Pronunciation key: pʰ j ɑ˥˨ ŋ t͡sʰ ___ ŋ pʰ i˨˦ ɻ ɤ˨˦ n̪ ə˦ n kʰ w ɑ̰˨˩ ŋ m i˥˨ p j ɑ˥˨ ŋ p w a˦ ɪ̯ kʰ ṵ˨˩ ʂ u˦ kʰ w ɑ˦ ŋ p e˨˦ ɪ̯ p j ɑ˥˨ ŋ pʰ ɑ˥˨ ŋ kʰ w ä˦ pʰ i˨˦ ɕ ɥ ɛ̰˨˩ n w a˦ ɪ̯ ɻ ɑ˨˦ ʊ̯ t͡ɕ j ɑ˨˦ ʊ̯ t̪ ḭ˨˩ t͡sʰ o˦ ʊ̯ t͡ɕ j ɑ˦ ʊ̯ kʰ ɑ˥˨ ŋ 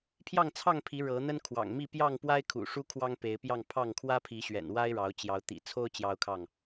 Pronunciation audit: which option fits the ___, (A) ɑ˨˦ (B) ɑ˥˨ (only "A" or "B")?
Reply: B